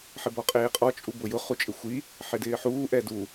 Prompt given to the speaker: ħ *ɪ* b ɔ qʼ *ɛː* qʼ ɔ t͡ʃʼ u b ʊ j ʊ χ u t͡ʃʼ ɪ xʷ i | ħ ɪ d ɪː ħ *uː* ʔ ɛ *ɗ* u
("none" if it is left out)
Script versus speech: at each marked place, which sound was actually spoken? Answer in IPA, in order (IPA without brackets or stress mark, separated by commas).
ɪ, eː, uː, d